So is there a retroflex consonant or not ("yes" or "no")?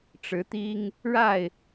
yes